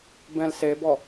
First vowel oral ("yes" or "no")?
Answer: no